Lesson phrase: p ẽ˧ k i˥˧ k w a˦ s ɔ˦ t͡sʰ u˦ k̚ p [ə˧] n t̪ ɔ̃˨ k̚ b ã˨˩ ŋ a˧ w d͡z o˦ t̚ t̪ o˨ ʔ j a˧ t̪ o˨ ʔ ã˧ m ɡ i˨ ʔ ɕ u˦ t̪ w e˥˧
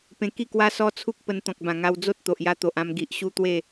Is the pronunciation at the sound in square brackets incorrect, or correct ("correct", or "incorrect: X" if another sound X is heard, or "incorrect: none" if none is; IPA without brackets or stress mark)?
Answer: correct